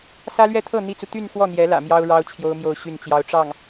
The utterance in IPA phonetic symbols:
s ä˥ l ɥ ɛ˥˧ t̪ʰ ɤ˥˩ n̪ i˥ t͡s u˨ t̪ y˥˧ n x w ɔ˥˩ n̪ j ɛ˧˥ l ä̰˨˩ m j ɑ˥ ʊ̯ ɻ ɑ˥ ʊ̯ t͡ɕʰ j o˥ ʊ̯ m j o˥˧ ʊ̯ ɕ y˥˩ n t͡ɕ j ɑ˥ ʊ̯ ʈ͡ʂ ɑ˥˩ ŋ

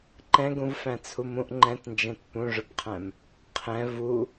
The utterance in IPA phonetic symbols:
ǃ ɛ̃ ɡ ũ v f æ̃ t͡sʰ u m ũ ʔ ŋ͡ǃ ɛ̃ t n d͡ʒ ɛ̃ t p ũ ʐ ʊ p qʰ æ̃ m | qʰ ɛ̃ v u

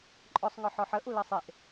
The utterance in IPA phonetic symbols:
ǃʼ ɔ sˤ ŋ ɔ ħ ɔ ħ ə ʔ u l ɜ sˤ e ʔ

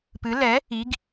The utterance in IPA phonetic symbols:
p ɨ l ɛ | i ɡ

